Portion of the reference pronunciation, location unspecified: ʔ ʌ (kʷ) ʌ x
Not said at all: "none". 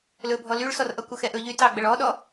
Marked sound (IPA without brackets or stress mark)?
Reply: kʷ